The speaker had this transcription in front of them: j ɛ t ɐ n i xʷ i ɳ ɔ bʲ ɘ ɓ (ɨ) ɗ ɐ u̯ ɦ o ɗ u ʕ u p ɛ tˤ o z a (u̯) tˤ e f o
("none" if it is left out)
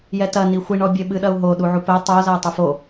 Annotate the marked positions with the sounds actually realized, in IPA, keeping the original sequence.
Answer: ɨ, u̯

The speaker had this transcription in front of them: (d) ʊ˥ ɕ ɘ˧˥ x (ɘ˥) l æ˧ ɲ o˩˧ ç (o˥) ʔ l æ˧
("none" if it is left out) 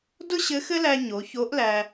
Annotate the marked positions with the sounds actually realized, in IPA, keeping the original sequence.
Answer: d, ɘ˥, o˧˥

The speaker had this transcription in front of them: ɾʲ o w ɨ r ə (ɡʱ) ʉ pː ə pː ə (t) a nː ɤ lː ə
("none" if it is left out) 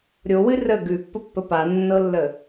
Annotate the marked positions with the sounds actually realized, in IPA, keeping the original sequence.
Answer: ɡ, p

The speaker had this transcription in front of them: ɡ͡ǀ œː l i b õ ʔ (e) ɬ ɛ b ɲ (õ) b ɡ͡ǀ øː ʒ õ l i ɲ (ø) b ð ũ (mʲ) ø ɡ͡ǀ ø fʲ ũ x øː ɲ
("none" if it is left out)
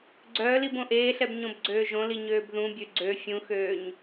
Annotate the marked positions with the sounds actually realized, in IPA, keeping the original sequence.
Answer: eː, õ, øː, bʲ

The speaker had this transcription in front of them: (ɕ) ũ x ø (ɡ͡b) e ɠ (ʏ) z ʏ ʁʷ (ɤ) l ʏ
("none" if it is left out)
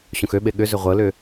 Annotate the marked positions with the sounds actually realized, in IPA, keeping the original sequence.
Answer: ɕ, ɓ, ʏ, ɤ

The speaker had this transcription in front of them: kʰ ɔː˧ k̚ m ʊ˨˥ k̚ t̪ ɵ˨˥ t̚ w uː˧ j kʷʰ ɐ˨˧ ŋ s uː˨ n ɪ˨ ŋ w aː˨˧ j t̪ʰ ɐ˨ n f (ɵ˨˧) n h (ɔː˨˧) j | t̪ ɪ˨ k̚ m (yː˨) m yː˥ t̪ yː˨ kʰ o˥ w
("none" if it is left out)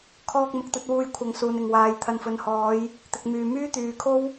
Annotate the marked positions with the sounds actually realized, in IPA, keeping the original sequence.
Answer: ɵ˨, ɔː˨˧, yː˨

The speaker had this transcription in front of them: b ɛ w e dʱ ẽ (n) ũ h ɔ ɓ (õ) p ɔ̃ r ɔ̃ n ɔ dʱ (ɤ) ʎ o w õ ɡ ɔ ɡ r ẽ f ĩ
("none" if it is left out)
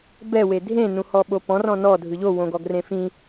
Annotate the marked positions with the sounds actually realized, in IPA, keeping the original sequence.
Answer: n, o, ɯ

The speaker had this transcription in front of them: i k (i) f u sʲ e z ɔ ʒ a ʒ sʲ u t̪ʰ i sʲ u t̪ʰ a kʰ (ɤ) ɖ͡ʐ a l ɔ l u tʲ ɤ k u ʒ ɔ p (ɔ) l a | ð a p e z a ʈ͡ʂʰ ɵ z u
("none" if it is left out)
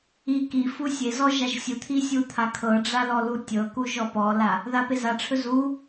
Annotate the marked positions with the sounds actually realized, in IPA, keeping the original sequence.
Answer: i, ɤ, ɔ

